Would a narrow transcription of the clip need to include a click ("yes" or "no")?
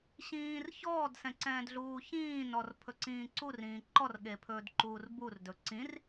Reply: yes